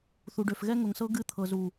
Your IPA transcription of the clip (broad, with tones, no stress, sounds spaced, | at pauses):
θ u˨ ɖ ø˨ f ɣ ɛ˦ ŋ ʊ˨ ŋ s ɤ˦ ɡ ɨ˦ t̪ʰ ɤ˨ z u˨